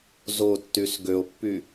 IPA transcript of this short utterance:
zotːys ɡøo̯pːy

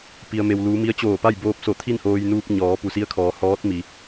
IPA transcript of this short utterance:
pi˧ə̯me˧wluː˧˥ mi˧˥ə̯t͡ɕoː˧˩pa˥˨j boː˧p̚so˧˩ t̪ʰi˥˨nhoː˧jnuː˧p̚ ɲɔː˩˧pu˩si˧˥ə̯kʰɔː˩˧ hɔː˧˥t̚ mi˩˧

